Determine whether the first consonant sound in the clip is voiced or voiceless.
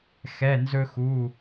voiceless